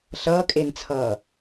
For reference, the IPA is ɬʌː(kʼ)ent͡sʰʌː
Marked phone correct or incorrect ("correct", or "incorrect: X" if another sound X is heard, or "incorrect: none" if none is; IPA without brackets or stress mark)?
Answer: correct